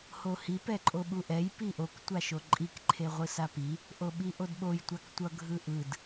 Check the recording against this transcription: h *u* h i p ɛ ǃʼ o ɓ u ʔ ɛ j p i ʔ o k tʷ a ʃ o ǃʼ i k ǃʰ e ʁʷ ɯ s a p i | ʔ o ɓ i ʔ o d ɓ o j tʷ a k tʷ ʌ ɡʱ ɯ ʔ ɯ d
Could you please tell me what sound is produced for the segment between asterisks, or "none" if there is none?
o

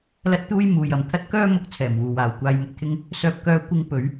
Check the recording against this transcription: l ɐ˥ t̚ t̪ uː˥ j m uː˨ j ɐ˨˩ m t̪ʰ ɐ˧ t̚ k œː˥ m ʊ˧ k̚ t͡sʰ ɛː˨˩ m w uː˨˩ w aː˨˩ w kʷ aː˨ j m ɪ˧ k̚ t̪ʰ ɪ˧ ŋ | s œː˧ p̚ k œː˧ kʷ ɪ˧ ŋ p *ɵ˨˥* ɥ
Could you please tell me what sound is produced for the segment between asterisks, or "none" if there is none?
ɵ˨˧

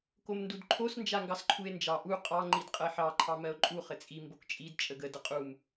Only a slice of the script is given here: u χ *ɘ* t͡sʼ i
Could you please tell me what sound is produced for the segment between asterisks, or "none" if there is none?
ɘ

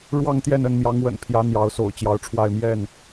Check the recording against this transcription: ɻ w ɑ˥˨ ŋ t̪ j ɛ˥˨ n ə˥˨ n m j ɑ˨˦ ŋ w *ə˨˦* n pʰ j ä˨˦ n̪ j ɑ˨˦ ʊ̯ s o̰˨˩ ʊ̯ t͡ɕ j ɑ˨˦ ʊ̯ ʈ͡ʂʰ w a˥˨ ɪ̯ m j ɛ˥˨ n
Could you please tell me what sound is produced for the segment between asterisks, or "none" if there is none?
ə̰˨˩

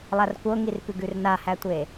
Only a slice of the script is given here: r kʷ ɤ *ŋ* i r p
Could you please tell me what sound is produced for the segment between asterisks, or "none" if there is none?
ŋ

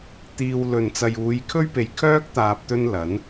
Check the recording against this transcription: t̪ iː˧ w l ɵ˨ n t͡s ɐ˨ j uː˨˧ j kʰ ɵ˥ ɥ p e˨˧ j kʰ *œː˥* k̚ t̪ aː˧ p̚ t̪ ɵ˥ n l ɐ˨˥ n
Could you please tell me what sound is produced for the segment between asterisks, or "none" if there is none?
œː˥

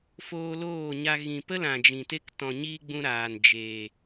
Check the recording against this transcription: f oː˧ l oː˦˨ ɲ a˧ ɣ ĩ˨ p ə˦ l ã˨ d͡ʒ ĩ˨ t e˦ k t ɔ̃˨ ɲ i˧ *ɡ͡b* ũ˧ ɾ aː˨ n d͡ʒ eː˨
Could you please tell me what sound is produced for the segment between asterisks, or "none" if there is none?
ɡ͡b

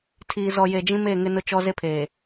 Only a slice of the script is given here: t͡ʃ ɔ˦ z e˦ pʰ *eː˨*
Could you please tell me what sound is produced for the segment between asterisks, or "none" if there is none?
eː˨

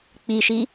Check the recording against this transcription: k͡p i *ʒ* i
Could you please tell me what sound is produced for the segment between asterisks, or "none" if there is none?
ʃ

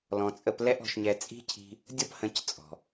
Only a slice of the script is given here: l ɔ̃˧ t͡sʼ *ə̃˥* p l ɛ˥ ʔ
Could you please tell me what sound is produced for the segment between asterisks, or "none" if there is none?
ə˥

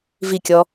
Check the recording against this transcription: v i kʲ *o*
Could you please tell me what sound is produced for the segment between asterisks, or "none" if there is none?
ɔ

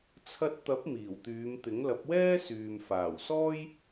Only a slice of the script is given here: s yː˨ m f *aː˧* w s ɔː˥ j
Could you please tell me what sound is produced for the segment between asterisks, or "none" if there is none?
aː˨˩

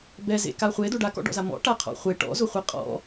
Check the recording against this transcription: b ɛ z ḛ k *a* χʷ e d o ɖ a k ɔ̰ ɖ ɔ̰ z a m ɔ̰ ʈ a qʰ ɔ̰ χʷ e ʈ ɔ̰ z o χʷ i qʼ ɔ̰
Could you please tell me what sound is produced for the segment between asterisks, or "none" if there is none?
a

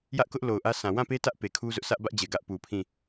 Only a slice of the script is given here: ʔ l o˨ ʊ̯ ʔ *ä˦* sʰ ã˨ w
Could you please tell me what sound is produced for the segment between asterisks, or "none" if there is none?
ä˦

